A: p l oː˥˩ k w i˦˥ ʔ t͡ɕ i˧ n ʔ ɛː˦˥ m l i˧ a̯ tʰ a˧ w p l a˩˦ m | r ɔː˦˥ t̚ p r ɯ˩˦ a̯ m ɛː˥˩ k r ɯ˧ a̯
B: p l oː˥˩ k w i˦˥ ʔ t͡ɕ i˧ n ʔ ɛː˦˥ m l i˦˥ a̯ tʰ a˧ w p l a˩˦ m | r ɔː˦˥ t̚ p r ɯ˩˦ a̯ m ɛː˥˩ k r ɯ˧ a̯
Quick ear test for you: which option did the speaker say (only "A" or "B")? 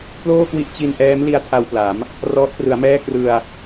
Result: B